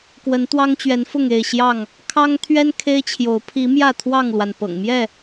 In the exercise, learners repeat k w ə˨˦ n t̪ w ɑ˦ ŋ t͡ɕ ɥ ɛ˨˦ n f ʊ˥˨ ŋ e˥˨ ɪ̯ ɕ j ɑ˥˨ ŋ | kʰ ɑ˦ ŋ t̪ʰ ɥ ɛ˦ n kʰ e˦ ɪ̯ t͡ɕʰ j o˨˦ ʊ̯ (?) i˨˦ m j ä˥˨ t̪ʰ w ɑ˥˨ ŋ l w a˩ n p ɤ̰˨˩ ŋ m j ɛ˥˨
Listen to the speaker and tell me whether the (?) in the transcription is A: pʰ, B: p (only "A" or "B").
A